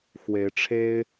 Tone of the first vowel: rising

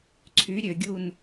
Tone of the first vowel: rising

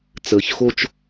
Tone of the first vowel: low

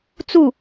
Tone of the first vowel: falling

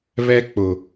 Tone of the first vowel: high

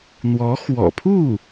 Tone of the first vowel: rising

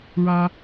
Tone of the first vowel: high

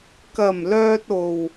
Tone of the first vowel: low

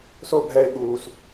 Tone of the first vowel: falling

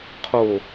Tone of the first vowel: low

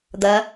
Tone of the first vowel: rising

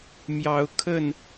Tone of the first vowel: rising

